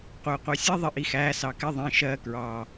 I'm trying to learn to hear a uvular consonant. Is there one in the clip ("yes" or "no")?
yes